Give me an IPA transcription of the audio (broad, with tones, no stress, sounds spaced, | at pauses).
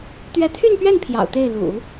t̪ ɥ ɛ˧˥ t̪ʰ y˥˧ n p ɥ ɛ˥˩ n pʰ j ɑ̰˨˩ ʊ̯ t̪ e˥˩ ɪ̯ l ṵ˨˩˦